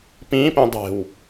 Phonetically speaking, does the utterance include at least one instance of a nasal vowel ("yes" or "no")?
yes